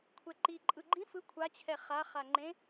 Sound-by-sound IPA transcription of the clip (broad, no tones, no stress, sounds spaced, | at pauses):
kʷʰ ɛ ǃ i ǃʼ ɯ ɡ͡ǃ ĩ f ɯ kʷʰ a t͡ɕʰ ɛ χ a χ a ŋ͡ǃ ẽ